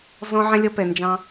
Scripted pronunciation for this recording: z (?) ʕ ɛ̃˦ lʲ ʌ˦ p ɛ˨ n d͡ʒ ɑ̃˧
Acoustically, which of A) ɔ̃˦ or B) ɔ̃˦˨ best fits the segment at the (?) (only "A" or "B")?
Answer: A